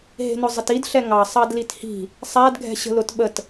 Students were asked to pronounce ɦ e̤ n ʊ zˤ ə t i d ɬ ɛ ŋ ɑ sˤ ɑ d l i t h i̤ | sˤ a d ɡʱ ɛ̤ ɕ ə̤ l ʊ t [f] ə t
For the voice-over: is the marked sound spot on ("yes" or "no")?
no